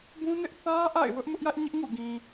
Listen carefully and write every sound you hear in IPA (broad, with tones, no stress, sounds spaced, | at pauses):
b ũ˦ n ɪ˦ ʔ θ ä˦ ʔ a̰˦˨ ɪ̯ w ʊ˦ ʔ m ʊ˦ ʔ j ä˦ ʔ ɲ ɪ˦ ʔ ŋ ṵ˦˨ ɡ ĩ˨